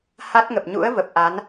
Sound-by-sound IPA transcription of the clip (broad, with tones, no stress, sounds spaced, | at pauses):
h a˦˥ t̚ ŋ ə˨˩ p̚ ɲ ṵ˧˥ ə̯ v ə˨˩ p̚ ʔ a˨˦ n